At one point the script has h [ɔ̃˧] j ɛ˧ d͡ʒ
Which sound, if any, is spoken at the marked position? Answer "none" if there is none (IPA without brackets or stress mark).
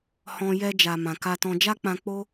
ɔ̃˧